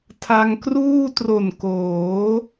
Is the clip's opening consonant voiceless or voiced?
voiceless